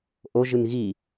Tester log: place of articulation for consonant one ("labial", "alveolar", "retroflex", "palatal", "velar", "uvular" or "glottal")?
glottal